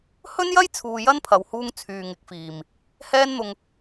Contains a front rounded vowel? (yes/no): yes